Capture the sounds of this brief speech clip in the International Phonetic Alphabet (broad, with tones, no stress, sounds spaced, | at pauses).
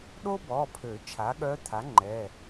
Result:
ɗ o˥ b ɔ˩˧˩ pʰ ø˨˩˦ t͡ʃʰ a˩˥ ɠ œ˧˥ t̪ʰ a˩˥ ŋ͡ǃ ɛ˩˧˩